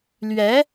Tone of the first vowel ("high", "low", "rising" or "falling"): rising